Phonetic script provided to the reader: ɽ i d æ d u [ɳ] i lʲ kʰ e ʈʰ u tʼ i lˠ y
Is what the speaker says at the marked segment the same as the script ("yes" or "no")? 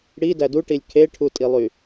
no